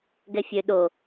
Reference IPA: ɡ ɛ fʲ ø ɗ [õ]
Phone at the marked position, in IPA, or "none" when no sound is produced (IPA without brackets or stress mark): o